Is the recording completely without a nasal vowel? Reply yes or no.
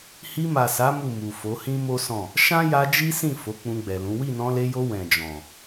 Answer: no